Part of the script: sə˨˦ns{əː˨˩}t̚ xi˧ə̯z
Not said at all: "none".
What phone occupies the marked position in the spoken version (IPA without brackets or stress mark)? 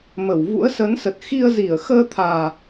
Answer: ə˨˩